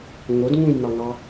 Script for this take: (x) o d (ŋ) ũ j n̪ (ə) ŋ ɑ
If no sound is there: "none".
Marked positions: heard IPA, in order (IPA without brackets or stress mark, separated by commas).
ŋ, ŋ, ɑ